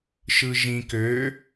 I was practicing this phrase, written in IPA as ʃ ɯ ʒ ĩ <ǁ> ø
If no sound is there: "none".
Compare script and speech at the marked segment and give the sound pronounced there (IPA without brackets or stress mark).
k